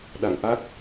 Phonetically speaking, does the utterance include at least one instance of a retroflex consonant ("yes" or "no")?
no